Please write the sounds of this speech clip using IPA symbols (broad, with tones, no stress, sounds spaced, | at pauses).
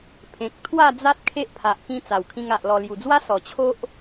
pʰ ẽ˨ k̚ t̪ʰ w a˥˧ d͡z a˦ t̚ kʰ e˦ ʔ pʰ a˨ ʔ k ĩ˧ t͡s a˨˩ w kʰ ĩ˧ ŋ a˨ ʔ l ɔ˨˩ l j u˨˩ d͡z w a˦ s ɔ˨˩ t͡ɕʰ o˦ ʔ